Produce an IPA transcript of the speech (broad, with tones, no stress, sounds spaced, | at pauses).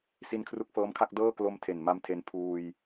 s i˧ n kʰ r u˦˥ k̚ f ɤː˦˥ m kʰ a˥˩ k̚ d ɤː˥˩ k l o˦˥ m tʰ e˨˩ n m a˦˥ m tʰ e˧ n pʰ uː˧ j